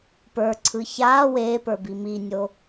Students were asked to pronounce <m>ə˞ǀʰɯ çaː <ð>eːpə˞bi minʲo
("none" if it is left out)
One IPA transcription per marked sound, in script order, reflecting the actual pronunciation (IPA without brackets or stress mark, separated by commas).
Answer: p, w